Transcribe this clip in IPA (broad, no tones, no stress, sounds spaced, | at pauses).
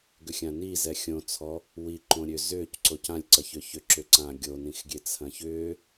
ɡ ʏ xʲ ã n i z ɛ xʲ õ t͡sʰ ɔ | w i ǃ õ ɾʲ ø z ʏː c ǀ o c ã lʲ ǀ ɐ ç ʏ ç ʏ ǁ ʏ ǀ ã ɡʲ o n ĩ x ɡʲ e t͡sʰ ɐ̃ ç ʏː